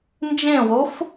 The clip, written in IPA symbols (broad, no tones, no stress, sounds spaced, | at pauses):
n d͡ʒ ẽ w o f